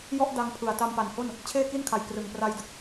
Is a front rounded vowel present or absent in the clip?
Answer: absent